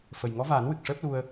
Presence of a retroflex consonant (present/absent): present